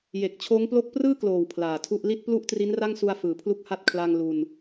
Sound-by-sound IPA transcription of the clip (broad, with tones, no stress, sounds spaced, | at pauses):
j e˨˩ k̚ t͡ɕʰ oː˦˥ ŋ p l o˥˩ k̚ p r ɯː˥˩ k l oː˨˩ w pʰ l aː˨˩ tʰ u˥˩ ʔ l i˥˩ t̚ p l u˥˩ ʔ t r i˦˥ n r a˥˩ ŋ s u˧ a̯ f ɯː˩˦ pʰ l u˦˥ k̚ h a˦˥ t̚ kʰ l a˧ ŋ l u˧ n